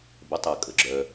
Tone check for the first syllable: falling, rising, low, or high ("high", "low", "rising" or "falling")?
rising